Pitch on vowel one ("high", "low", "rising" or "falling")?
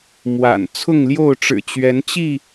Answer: low